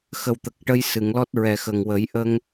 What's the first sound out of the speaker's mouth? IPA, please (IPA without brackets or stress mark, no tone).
x